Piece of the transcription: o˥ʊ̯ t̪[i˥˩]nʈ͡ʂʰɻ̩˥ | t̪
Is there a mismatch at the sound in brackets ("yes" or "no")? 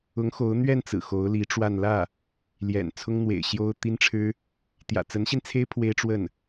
yes